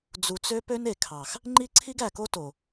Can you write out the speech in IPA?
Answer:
d͡zu˨t͡sø˦ pø˦ne˨kʰɑ˨x | ŋ͡ǃi˦ǀʰi˦ɡæ˨ko˦ to˨

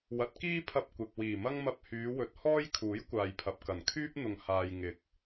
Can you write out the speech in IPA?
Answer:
wɐ˨˥t̚kiː˥pʰɐ˧p̚ kʷɪ˨k̚ wiː˨˩mɐ˥ŋmɐ˧p̚ hyː˨˧wɵ˨˥t̚hɔː˥j kʰuː˨˥jkʷaː˨jpʰɐ˨p̚ kɐ˨˩nkʰyː˥p̚n̪ʊ˨ŋ haː˨j ŋɪ˨k̚

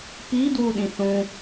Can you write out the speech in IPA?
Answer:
pidwuɗĩ θũ

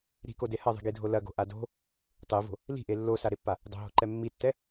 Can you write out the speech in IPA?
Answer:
ɾi̤kode hɐðˤi̤ɡidʱo lɐɡo̤ʔa do̤ | tˤevo̤ | li̤ʔe lːosaɾepːa | dˤo̤ɦo̤ǃɛ mːitːɛ

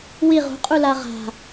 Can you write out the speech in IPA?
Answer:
wi ʁṳqʼu laʁa̤

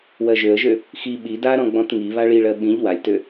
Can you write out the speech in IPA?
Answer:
wɜʒøə̯ʒø | xi ɓi daɾɔ̃ ɡ͡bɔ̃tŋi βaɭiɭɜ ɓĩʎ walʲtø

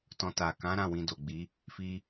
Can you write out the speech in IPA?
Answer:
tɔ̃˧ta˨ kã˨˦ɾã˦˨ wĩ˧do˨ɡ͡bi˨˦ | fi˧

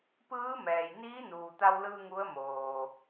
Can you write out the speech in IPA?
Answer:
pɯː˧˥mɛː˩jniː˧˥nuː˩ t̪a˧wlɯː˧ ŋu˧˥ə̯moː˩

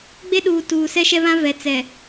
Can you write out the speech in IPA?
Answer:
ɡ͡be˦ɗuː˨ tuː˨ sɛ˦ʃɛ˦βã˦ vɛ˨t͡sɛ˨

